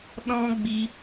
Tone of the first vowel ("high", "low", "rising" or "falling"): high